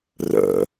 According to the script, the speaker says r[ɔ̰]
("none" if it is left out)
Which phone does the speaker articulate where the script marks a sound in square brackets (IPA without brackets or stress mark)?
ə̰